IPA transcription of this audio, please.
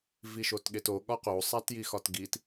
viʃotɠeto ɠɒqo sˤætjixɒtɡit

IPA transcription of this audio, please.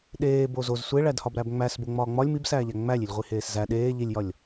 ɗeː bozoz sʷeɭædhɒb ɾæbŋ͡mæs boŋ͡mɒːŋ͡mɒlʲ mibsæːʎæ ŋ͡mælʲilʲʁʷi heːszæ ɗeː ʎilʲjɒlʲ

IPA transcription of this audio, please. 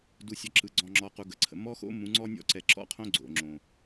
du˨sʲɒ˨ ǁɯ˨ɡ͡ǀɔ̃˨ŋ͡ǁɔ˨ qu˨ɡə˨ǀʰə̰˨ mɔ˦xo̰˦ mũ˨˦ŋ͡ǀɔ˦nʲɔ̰˦ ǀɛ˨ǁɔ̰˦qʰõ˦ ɡ͡ǀo̰˨ŋ͡ǁõ˨

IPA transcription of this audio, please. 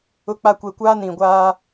ʊ˦k͡pa˦ kʷɛ˨kʷaː˦ nĩ˨ ɡʷaː˦

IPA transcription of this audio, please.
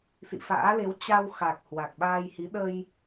sḭ˧˨fa̰ː˧˥le˨˦w t͡ɕa˧wxa˨˩k̚ hwa˨˩k̚ɓaː˧jhi˨˦ ɗə˧j

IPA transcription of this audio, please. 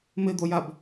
mɪd̪ojab

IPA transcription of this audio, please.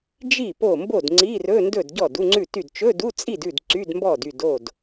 d͡ʒi˥˩ po˥˩ mbo˥˩dŋ͡ǀi˧˥˧rɵ˧˥˧ndɵ˥˩d ɟɔ˥˩du˧˥˧ŋ͡ǀʉ˥˩ty˥˩d t͡ʃɵ˧˥˧du˧˥˧t͡sʼi˥˩dʉ˥˩d ǀy˧˥˧dmbɔ˥˩dy˥˩d o˥˩d

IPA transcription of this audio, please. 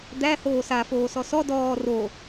d̪æ hoːsa foːsɔsɔ dɔː ro

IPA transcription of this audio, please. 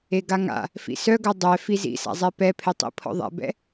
eɡaŋa̰ | fḭsœɡœ dˤɛ fizḭsa̰zˤɛ pɛ pʰetˤḭ pʰɔ̰ðˤɛ̰bɛ̰

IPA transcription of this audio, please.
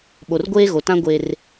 ɓo˨rɡʷeː˦ɣo˨tã˦ ɡʷe˦r

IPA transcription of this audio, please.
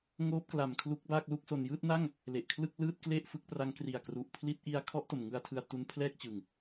ŋoː˦˥p̚kla˨˩m kʰlu˦˥k̚baː˥˩k̚lu˥˩k̚so˧n jɯː˥˩t̚na˥˩ŋ | le˨˩ʔkʰlɯ˥˩k̚ lɯː˥˩t̚kle˥˩ʔfɯ˦˥k̚pra˦˥ŋ kri˨˩a̯kru˨˩ʔpʰli˦˥t̚ ʔi˧a̯ kʰɔ˦˥ʔ to˨˩mŋɯ˧a̯tʰɯ˧a̯ tu˦˥n pʰlɛː˥˩k̚t͡ɕɯ˨˩ŋ

